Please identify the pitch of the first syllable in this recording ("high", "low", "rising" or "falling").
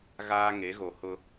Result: high